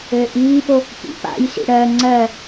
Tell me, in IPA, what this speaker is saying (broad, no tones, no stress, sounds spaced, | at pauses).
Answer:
ɘː ʔ iː p o | p ḭ p a̰ j s ḭ ɽ ɜ ŋ͡ǀ ɜ